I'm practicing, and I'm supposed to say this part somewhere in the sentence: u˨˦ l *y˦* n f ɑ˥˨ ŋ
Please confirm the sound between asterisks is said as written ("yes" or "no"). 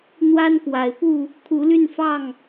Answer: no